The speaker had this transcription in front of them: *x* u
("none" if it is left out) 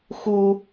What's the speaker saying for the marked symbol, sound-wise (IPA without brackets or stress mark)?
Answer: x